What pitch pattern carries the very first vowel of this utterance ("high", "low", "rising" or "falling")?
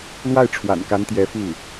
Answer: falling